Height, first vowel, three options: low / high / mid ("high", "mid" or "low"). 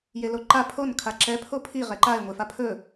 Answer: mid